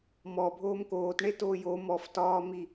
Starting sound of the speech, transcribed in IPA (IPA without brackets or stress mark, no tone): m